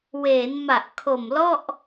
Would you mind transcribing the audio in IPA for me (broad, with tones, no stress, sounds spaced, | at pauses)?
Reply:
w eː˩˦ n m a˨˩ ʔ kʰ o˨˩ m l ɔ˥˩ ʔ